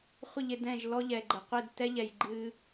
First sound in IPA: χʷ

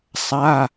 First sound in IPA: sˤ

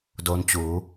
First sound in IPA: d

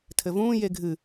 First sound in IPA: tʰ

